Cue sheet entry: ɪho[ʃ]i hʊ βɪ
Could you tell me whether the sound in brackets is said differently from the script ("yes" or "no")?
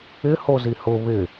yes